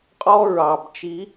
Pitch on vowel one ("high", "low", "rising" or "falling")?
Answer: high